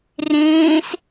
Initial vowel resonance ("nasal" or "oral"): nasal